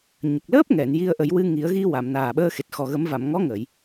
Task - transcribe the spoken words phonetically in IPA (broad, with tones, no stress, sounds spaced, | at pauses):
ɲ ə˨˩ k̚ l əː˦˥ p̚ ŋ ɛ˨˩˨ n j i˧ ə̯ ʔ ə˨˩˦ j w ɨ˧ ŋ i˨˩˦ ə̯ ɣ i˧ w a˨˩˨ m n aː˨˩ ɓ əː˧ x e˨˩ t̚ x ɔ˨˩ ɣ ə˨˩˦ m v a˨˩˨ m ŋ ɔ˧˥ ŋ ə˨˩˨ j